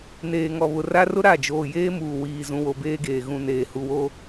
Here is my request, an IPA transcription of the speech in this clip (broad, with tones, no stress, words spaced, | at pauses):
neː˨ŋɔ˨βʊ˨ ra˦rʊ˦ ɾa˦˨ d͡ʒoː˨jeː˦muː˨ wiː˦zũ˦wo˦ beː˦ɡeː˨ ɣũ˨neː˨ hu˨wo˦